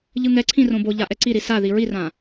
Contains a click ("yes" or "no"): yes